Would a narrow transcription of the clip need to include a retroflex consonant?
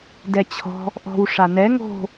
yes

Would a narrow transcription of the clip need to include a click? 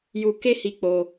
no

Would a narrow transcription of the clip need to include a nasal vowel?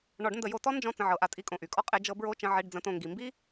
yes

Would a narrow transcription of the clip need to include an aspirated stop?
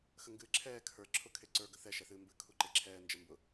yes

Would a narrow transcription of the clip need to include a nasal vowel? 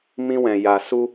yes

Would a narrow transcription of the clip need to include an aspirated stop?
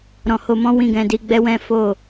no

